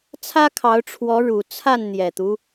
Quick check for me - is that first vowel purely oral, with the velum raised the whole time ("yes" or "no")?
yes